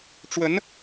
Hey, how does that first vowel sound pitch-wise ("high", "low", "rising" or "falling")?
rising